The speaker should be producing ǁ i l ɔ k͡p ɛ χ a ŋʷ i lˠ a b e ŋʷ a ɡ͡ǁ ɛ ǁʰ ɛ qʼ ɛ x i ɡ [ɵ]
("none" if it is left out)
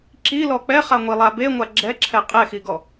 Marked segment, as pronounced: ɔ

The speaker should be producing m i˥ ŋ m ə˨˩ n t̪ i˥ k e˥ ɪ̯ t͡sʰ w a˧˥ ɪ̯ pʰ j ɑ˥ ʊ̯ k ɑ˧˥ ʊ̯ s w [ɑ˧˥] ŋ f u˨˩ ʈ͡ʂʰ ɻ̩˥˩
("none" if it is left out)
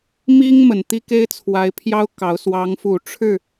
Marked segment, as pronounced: ɑ˧˥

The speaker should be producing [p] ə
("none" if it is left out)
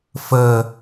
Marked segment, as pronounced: f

